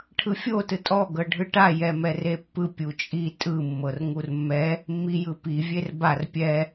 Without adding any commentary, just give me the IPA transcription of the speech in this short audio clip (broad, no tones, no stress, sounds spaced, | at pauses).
ʈʰ ɯ fʲ o t ɯ tʼ ɔ ɡ ɤ ɖʱ ɯ ʈ a j ɛ m ɛ r e pː ɯ pʲ u t͡ʃʼ i tʼ ɯ mː ɤ r ŋ u r mː ɛ | mː i j ɯ p i vʲ e r b a r pʲ ɛ